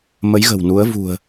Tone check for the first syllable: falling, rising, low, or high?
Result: rising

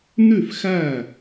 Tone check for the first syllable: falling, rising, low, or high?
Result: falling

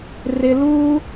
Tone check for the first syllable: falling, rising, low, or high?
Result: low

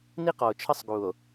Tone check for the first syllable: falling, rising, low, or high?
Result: high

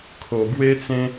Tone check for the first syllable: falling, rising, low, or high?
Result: low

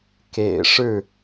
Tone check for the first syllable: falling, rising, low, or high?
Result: low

